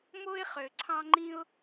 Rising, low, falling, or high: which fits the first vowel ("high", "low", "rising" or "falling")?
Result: high